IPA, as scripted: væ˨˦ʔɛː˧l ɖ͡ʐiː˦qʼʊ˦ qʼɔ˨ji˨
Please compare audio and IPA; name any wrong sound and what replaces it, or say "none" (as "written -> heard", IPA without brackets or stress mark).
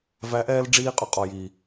i˨ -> iː˨